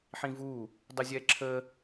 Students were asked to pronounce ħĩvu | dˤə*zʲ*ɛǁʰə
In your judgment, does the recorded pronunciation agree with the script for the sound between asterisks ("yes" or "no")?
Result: yes